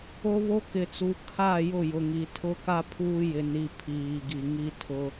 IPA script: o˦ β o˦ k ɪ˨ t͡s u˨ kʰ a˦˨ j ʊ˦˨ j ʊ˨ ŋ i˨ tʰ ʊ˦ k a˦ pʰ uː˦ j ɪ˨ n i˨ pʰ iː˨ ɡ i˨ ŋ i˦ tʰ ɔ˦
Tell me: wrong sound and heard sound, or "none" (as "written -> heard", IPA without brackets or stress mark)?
ɔ˦ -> ʊ˦